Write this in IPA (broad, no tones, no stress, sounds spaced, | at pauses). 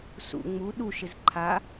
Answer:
s ṵ ŋ͡m u ɗ u ʃ ɪ z ǃʰ a